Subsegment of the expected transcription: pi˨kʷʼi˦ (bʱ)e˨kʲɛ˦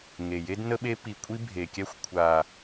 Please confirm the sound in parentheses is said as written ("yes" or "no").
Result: yes